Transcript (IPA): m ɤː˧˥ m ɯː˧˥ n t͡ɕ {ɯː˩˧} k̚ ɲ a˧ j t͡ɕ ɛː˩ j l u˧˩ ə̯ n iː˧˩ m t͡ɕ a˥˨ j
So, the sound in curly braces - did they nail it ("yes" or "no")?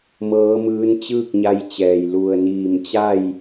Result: no